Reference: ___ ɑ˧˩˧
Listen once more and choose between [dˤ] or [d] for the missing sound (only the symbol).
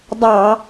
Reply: dˤ